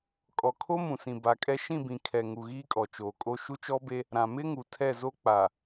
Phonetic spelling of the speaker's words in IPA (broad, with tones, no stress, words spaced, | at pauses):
kʼɔ˨kʰo˦mũ˨sĩ˨ ba˨kʼɛ˦ ʃĩ˦˨bĩ˨kʰɛ˨ŋu˨ ɣiː˦kʼɔ˨t͡ʃoː˨kʼo˦ ʃu˦t͡ʃɔ˦be˦ | ɾã˨mɪ˦ŋu˨tʰɛ˦˨ zo˦ k͡pa˨